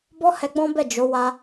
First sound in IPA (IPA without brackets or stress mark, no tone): b